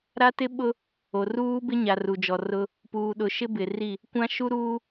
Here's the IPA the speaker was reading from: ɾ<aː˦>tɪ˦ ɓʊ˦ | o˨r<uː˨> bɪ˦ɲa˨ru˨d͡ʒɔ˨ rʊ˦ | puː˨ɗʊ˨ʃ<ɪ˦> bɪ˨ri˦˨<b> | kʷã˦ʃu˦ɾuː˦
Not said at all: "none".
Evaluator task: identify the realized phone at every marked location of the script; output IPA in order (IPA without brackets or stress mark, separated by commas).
a˦, uː˦, ɪ˦, none